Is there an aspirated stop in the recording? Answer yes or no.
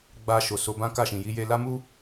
no